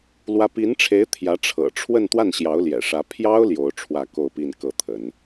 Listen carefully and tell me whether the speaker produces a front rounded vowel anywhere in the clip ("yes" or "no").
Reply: no